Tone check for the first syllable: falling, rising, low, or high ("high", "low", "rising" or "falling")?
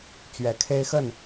low